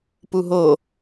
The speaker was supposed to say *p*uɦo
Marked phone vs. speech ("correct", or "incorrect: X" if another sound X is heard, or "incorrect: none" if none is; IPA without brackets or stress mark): correct